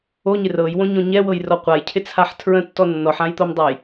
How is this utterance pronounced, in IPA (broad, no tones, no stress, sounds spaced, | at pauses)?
o ɲ ɪ r ɤ j w õ ɲ õ ɲ ɛ w ɤ j r ɔ qʷ a j cʰ ɪ t͡sʰ a ħ tʰ ɹ ə̃ tː ɔ nː ɔ ħ ã j t̪ o m dˤ a j